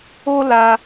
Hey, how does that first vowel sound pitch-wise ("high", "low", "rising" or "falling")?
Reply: high